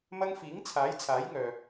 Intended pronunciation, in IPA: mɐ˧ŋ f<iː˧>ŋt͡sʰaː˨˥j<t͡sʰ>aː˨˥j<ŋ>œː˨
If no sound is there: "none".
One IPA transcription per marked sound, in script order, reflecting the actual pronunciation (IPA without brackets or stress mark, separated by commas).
iː˨˥, t͡sʰ, ŋ